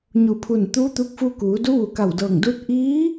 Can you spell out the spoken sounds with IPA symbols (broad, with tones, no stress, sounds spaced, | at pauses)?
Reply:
ɲ u˧˩ pʰ u˧˩ n t̪ uː˧˥ t̪ u˧˥ k̚ f u˧ k uː˩˧ d u˧˥ ʋ u˧˩ k a˧˩ w d ɤː˧˩ ŋ d uː˧˥ t̚ ʔ iː˧˥